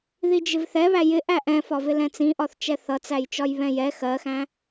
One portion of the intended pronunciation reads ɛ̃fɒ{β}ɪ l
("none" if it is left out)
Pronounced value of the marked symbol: v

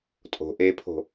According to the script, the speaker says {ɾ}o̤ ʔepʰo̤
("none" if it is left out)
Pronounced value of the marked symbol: tʼ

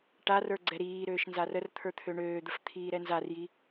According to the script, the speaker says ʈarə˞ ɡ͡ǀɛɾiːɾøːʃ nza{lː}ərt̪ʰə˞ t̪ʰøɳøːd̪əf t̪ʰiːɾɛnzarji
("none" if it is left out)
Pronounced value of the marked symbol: r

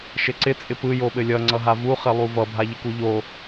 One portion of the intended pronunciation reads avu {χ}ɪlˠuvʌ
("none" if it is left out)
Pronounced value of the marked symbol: χ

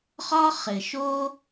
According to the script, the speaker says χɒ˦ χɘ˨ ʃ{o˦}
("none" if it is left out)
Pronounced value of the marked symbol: o˦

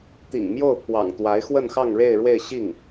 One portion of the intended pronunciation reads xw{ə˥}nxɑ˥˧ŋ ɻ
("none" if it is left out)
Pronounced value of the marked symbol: ə˥˧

